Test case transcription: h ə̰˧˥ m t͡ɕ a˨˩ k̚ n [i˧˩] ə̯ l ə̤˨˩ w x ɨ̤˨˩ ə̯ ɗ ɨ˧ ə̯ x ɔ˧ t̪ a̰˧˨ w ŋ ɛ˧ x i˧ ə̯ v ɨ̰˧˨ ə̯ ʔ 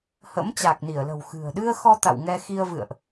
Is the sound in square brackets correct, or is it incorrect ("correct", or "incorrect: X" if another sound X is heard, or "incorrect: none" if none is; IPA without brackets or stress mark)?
correct